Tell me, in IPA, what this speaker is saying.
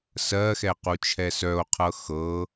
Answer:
s ɜ x ɛ q u t͡ʃʰ ɛ s œ o̯ qʰ ɤ x ɤ

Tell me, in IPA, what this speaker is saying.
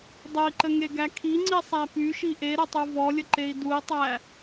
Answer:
dˤ ə i̯ ǃ ə ŋ e ɡ æ kʰ i ŋ͡ǀ i sˤ æ p y ʃ i ʔ e ɾ ə tˤ u v ɔ lʲ ə ǃ e i̯ d u i̯ tˤ æ

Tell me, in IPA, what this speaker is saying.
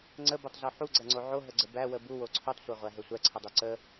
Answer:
ŋ͡ǀ ə b o tˤ z o ħ u ɡ͡ǀ ɐ ŋ͡ǀ o ʕ o ɦ ə ɡ͡ǀ ə b æ w ə b u w o ǀʰ u tˤ sʷ æ ʁʷ æ ɦ ə sʷ æ ǀʰ ə dˤ o ǀ ə

